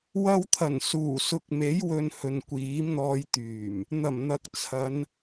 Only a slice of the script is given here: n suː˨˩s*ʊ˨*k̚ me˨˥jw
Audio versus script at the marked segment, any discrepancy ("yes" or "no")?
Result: no